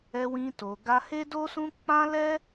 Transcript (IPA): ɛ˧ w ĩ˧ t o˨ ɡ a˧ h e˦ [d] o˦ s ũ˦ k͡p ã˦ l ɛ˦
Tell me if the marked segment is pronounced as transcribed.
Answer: yes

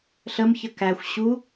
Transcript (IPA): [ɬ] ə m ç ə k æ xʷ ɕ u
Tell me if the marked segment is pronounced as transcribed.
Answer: yes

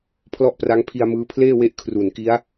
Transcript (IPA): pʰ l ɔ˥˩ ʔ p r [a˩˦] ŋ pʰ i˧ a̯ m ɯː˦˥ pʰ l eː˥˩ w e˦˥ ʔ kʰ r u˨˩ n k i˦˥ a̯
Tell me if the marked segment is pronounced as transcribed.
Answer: no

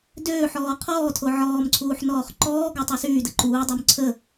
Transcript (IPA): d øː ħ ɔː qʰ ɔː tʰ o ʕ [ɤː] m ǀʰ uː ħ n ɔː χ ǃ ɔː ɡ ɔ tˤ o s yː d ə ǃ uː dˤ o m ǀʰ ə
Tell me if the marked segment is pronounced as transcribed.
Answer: no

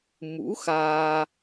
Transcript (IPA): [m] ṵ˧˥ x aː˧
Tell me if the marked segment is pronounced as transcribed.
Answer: yes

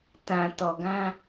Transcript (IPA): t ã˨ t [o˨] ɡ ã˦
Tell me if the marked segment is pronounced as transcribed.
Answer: no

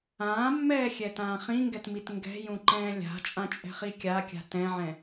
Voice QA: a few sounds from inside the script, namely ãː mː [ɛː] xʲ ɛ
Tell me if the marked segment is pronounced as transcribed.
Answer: yes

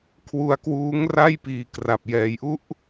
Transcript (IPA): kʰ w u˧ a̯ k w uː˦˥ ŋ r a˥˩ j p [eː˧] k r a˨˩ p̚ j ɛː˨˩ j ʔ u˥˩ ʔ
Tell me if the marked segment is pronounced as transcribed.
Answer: no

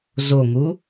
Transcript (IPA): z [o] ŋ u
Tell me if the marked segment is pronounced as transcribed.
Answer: yes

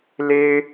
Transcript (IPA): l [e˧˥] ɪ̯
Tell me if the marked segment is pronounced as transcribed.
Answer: no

